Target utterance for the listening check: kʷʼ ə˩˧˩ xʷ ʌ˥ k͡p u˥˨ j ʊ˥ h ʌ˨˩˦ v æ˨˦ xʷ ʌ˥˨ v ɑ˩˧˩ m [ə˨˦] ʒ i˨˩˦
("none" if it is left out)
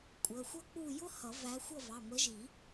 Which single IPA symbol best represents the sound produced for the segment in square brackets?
ə˨˦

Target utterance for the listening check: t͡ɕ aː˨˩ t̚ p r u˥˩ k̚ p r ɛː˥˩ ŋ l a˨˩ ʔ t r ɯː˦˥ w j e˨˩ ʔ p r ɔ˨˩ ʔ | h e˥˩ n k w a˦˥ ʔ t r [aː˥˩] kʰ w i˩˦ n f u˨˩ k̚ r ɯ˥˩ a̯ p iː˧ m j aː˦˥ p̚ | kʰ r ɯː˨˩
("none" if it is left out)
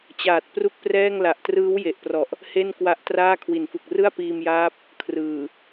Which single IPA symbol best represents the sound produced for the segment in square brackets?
aː˥˩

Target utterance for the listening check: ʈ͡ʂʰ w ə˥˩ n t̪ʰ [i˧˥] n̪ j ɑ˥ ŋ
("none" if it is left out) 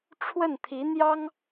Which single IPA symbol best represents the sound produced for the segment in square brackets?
i˧˥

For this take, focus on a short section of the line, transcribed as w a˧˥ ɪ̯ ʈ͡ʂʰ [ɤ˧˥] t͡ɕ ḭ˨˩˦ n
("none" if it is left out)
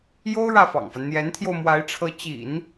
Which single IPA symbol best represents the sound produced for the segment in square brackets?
ɤ˧˥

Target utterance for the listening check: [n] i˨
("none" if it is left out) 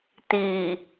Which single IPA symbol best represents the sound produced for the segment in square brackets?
t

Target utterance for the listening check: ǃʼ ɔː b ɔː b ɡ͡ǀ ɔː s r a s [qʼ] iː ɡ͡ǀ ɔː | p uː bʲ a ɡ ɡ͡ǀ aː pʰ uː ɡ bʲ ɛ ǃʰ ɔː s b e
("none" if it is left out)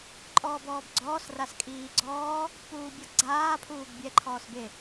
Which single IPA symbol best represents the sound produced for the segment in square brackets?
kʼ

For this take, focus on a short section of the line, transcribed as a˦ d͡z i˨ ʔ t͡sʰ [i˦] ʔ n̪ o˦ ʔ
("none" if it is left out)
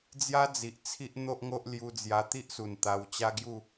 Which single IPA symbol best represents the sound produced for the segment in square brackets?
i˦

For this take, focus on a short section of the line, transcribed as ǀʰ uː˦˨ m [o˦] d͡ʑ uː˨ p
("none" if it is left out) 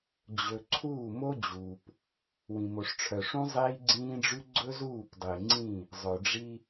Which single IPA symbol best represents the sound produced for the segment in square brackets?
o˦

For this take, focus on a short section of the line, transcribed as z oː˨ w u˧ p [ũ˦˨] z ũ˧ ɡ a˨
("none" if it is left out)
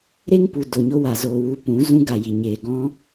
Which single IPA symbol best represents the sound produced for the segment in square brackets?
ũ˨˦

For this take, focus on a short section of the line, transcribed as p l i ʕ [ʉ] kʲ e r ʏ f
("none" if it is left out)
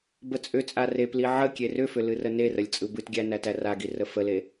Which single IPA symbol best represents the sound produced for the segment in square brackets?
ə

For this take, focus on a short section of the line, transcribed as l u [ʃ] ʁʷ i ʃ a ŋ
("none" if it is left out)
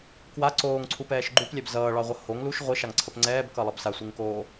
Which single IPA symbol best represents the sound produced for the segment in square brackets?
ʃ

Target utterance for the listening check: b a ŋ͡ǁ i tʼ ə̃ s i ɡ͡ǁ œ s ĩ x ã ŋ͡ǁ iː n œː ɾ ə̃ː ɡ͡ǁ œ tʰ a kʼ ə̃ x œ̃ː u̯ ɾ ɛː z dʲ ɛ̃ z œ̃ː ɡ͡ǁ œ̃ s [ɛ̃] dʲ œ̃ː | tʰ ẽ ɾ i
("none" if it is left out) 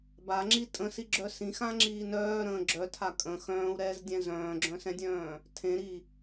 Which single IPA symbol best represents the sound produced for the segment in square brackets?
ɛ̃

